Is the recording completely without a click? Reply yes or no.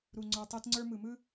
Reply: no